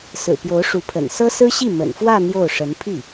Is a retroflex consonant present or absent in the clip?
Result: present